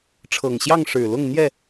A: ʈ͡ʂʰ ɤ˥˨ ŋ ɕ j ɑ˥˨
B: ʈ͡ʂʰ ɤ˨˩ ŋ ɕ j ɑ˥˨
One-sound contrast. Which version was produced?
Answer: B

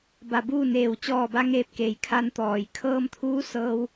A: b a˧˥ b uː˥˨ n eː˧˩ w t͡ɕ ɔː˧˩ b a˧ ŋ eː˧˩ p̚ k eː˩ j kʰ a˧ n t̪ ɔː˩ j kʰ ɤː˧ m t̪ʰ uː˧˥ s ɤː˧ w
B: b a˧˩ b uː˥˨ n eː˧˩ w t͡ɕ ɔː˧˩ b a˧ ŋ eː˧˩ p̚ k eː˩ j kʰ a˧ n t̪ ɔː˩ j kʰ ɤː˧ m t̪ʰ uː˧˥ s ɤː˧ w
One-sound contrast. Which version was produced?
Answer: B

